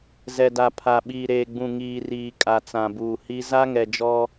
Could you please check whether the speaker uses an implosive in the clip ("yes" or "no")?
yes